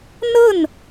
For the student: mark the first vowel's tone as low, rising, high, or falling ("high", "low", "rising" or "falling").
falling